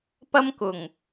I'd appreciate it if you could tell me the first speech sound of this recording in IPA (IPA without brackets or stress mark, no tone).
p